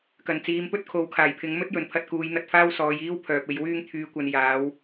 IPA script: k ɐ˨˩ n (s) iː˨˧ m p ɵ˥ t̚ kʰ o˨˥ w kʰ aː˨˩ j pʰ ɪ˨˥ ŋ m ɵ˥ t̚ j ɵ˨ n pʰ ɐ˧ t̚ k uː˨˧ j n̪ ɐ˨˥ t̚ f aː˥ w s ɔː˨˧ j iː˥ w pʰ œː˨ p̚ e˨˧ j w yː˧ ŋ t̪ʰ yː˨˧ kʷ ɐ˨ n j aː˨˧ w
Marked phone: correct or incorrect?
incorrect